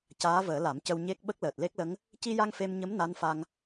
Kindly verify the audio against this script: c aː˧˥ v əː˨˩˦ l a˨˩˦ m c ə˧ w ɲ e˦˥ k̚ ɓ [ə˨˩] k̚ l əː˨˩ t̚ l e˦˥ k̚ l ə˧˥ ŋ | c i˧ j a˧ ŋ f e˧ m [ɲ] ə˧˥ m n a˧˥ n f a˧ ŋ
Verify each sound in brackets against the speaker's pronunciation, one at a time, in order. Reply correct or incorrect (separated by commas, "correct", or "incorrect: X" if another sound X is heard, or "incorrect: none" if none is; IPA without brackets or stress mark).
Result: incorrect: ə˦˥, correct